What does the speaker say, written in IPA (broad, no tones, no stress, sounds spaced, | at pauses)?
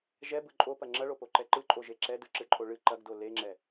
ʒ ɛ b ɯ ǃʼ o p ɐ ŋ͡ǁ ɐ ɭ o p o ǃ ɛ ǃ ɯ ǃʼ o ʒ e ǁ ɛ d ɯ ǁ ɨ ǃʼ o ɭ ɨ ǃ ɐ ɡ d o l e ŋ͡ǁ ɛ